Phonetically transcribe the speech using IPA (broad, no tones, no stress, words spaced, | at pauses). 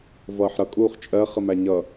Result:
vʌːħɾʌ kʼuːχt͡ʃʼɜ χəmæɲʌ